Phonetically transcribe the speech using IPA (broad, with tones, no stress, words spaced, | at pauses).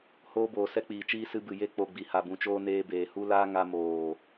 hoː˧boː˨ sɛ˧k͡piː˨t͡ʃiː˧ sɨ˧bɨ˨ je˧ k͡po˨ ɡ͡bi˨ha˨bũ˨t͡ʃoː˧ neː˧ beː˨hu˦laː˦ ŋa˧moː˨